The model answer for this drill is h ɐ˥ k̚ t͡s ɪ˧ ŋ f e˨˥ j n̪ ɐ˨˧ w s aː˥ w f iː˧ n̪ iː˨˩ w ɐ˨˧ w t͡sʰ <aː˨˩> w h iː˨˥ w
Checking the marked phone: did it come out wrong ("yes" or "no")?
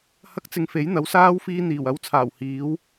no